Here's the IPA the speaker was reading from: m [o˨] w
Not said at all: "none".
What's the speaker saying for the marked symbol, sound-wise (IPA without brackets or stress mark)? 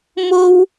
o˥